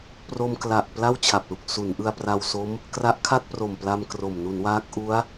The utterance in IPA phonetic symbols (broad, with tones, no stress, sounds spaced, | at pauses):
p r o˧ m k l a˨˩ ʔ p l a˥˩ w t͡ɕʰ a˨˩ p̚ l u˨˩ k̚ s u˩˦ n ʔ ɯ˧ a̯ p r a˧ w s o˦˥ m | k r a˦˥ ʔ kʰ a˥˩ t̚ p r o˨˩ m p l a˧ m k r o˨˩ m n u˩˦ n w aː˦˥ k̚ ʔ u˦˥ a̯